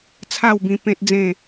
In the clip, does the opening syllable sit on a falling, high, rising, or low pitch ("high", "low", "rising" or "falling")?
falling